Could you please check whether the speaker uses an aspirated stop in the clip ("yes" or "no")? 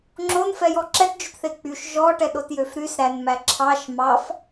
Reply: yes